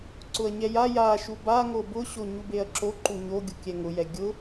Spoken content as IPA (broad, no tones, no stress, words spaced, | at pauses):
ǀʊɐ̯ɲɛja ja ʃuba ŋobʊ ɕoɲubeɐ̯ǁo ǃuɲoɡʲu kʲɛŋʊjɛ ɡʲʊ